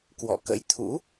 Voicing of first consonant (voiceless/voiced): voiceless